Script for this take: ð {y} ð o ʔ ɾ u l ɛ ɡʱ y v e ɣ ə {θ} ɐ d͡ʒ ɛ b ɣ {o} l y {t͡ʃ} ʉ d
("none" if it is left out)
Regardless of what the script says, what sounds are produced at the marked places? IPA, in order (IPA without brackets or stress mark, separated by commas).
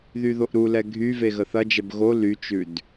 y, θ, o, t͡ʃ